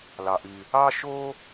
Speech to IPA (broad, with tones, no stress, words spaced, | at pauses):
lɑ˩ʔy˩ | ɑ˥ʃo˥